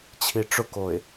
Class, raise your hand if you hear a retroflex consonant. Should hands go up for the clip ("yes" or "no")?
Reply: yes